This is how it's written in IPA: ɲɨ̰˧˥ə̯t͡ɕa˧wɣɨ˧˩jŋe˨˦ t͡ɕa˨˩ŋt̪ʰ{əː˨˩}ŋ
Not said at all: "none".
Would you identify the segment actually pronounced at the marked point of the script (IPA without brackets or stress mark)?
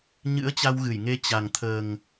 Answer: əː˨˩